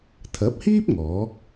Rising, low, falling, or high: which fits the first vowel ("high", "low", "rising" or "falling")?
rising